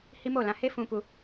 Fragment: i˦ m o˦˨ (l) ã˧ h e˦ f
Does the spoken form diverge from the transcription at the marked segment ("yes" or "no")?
no